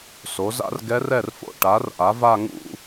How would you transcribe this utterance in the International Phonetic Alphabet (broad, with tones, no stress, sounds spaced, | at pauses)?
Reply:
s o˩˥ z a̰˥ r ɡ ɛ˧˥ r ɛ˥˩ r f o̰˥˩ ʈ a˩˥ r ʔ a˩˥ v a˥˧ ŋ ṵ˥˧